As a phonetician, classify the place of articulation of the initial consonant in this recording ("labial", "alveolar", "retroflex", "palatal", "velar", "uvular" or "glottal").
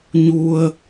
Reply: palatal